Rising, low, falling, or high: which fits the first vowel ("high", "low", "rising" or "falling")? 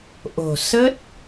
low